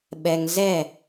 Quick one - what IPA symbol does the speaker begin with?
ɓ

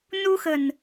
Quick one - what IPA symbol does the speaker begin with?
n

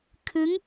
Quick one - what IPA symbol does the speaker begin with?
kʰ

